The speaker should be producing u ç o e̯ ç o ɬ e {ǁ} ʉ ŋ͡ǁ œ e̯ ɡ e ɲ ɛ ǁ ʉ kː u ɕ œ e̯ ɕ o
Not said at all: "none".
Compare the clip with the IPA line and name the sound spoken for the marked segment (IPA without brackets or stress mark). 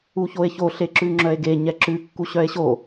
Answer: ǁ